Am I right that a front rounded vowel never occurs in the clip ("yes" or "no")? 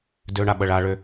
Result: no